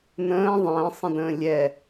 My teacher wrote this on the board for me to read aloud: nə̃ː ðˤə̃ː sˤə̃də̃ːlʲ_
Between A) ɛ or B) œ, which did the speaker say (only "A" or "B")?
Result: A